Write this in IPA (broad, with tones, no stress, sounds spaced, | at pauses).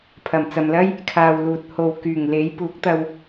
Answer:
pʰ ɐ˨˩ m t͡s ɐ˨ m l ɐ˥ j | kʰ aː˨ w l uː˨ t̚ h o˨ w k yː˨˩ ŋ l e˨˥ j p uː˨˥ k̚ t̪ ɐ˧ w